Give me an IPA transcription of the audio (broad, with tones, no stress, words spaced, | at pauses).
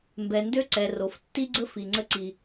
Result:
mbɛ˨ndø˦ǀɛ˨ ro˨ftːi˦ɡ͡ǀə˦ fi˨ŋ͡ǀə˦ ǀi˦